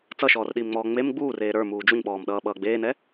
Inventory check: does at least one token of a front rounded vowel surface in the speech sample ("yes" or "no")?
no